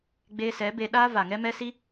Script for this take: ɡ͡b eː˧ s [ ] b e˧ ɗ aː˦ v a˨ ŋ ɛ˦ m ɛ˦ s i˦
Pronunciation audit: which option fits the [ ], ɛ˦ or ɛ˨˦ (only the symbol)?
ɛ˨˦